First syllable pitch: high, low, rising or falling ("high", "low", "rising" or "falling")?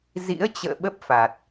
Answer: rising